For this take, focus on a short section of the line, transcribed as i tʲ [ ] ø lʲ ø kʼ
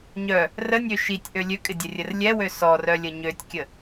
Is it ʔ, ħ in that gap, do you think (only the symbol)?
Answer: ʔ